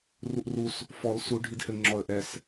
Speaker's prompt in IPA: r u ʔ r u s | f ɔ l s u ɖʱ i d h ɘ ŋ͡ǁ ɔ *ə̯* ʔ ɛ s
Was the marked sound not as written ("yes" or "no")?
no